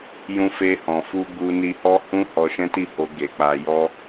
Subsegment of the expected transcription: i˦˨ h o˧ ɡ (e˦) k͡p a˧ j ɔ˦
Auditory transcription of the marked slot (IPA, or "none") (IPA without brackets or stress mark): e˨